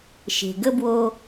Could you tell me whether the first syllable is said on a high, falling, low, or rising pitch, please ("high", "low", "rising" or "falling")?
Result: low